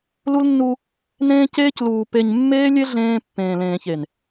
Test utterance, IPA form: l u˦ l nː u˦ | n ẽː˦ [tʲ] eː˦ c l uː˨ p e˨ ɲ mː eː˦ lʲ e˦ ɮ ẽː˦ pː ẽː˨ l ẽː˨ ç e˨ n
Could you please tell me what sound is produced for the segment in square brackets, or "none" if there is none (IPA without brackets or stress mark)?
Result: c